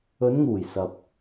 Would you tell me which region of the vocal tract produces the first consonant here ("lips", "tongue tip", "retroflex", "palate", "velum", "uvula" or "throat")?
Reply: tongue tip